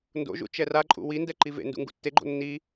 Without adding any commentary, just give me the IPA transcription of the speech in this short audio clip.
n d o̰ ʒ ṵ t͡ʃ ɛ r a ǃʼ ṵ w i n d ɛ ǃ i v ḛ n d ṵ ŋ ɡ ṵ tː e ɡ͡ǃ o̰ nː i

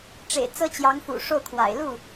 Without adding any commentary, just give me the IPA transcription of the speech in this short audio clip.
ʈ͡ʂ ḛ˨˩ ɪ̯ t͡s ɤ˥ t͡ɕ j ɑ˧˥ ŋ f ṵ˨˩ ʂ o˥˩ ʊ̯ kʰ w a̰˨˩ ɪ̯ l u˥˩

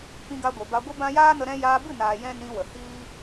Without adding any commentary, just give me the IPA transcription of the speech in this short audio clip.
p ĩ˧ ɡ a˧ ɡʷ e˨ b a˧ ɡʷ ɨ˦ b ã˦ j aː˦ n ə˧ ɾ ɛ̃˧ j aː˧ b ɨ˦˨ n aː˨ j ɛ̃˦ n ĩ˧ w ə˨ h iː˦

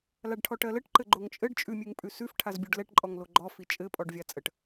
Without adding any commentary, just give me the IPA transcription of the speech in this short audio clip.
l a ɖ ʈʰ ɔ ʈ ɜ l ɘ ʈ ǃ ɘ ɡ͡ǃ o ŋ t͡ʃʼ ɘ ɖ t͡ʃʼ ʉ mʲ ʉ ŋ pʼ ʉ s ʉ f ʈʰ a z bʲ o ɖ l ɛ ʈ ǃʼ ɔ ŋ l o ɡ͡ǃ ɔ f i t͡ʃʼ ɘ pʼ ɔ ɖ vʲ a t͡sʼ ə ʈ

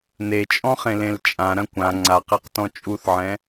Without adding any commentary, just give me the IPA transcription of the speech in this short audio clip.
n e t͡ʃʼ ɔ̃ χ ẽ l ẽ l t͡ʃʼ ã ɾ ɐ̃ kʷ ã ŋ͡ǀ a q e q t ɔ̃ t͡ʃʼ u θ ʕ ɛ̃

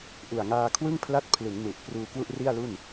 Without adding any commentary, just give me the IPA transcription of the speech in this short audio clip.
ʔ u˨˩ a̯ ŋ aː˧ kʰ w ɯ˥˩ ŋ pʰ l a˥˩ t̚ pʰ l ɯ˩˦ ŋ n u˨˩ ʔ p r uː˧ k w u˥˩ ʔ r i˥˩ a̯ l u˥˩ n

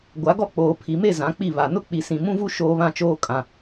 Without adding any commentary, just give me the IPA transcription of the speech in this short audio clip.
ɡʷ a˨˦ ɡ ɔ˦ k͡p oː˨ pʰ i˨ m e˦˨ z ã˨˦ k͡p i˦˨ β a˨ n ʊ˦ k͡p i˨ s ĩ˨ m ũ˦ v u˦ ʃ oː˦ β ã˦˨ t͡ʃ oː˦ kʼ ã˨

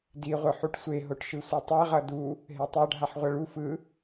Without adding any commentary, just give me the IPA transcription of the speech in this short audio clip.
d i ʁʷ ɯ ħ u ʈ sʷ e ɦ o ʈ ʃ ɯ sʷ ɛ tˤ a ʁ ʌ d u | ɦ e tˤ a ɖʱ a ħ ʁʷ ʌ ɭ u f ɯ

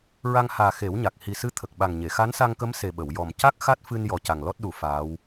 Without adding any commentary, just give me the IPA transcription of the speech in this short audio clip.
ɹ a˧ ŋ h aː˨˩ x e˨˩˦ w ɲ a˨˩ k̚ h i˨˩ s ɨ˧ t̪ʰ ə˨˩ k̚ ɓ a˨˩ ŋ ɲ e˨˩˨ x a˧˥ n s a˧ ŋ k ə˧˥ m s e˨˩ ɓ ə˨˩˨ w j ɔ˨˩ m c a˦˥ k̚ x a˦˥ t̚ f ɨ˧ n j ɔ˨˩ c a˨˩ ŋ l ɔ˦˥ t̚ ɗ u˨˩˦ f aː˧˥ w

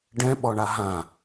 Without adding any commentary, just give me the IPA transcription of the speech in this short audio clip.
ɖ ɛ̃ ɓ ɔ ɳ a ɦ ã

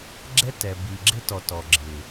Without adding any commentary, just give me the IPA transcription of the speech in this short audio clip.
ɡ͡ǁ ɛ˦ t ɛ˨ b i˨ ɡ͡ǁ ɪ˦ t ɔ˨ t ɔ˨ ɡ͡ǁ ɪː˨

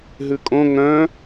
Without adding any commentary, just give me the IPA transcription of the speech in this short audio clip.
ɦ ʉ kʼ õ ŋ œ̃

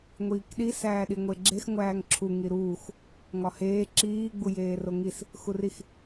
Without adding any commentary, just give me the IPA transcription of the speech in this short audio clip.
ŋʷ iː k ɗ i s æː ɗ i ŋʷ e ɡ͡ǁ e x ŋʷ æː ŋ ǁʰ u ŋ i ɾ uː x | ŋ ɒ h eː ǁ iː ɡ͡b u j eː r o ŋ i s | x u r i x

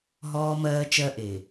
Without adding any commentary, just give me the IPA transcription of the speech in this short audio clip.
ɦ ɔː˦ m ɜː˦ t͡ʃ ɜ˦ ʔ e˨

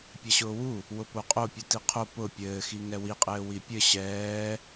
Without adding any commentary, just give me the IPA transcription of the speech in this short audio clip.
pʲ ɛ ɕ ʊː w u | w ʊ p o qʼ o pʲ u t i qʰ o p ʊ pʲ ɘː x i ŋ ɛ w i qʼ ɘː w i pʲ ɘ ɕ ɛː

